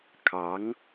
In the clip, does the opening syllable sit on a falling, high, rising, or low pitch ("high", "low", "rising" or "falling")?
rising